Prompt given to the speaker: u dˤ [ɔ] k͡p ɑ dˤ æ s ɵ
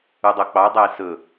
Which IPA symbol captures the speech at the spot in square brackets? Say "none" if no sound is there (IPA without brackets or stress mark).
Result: o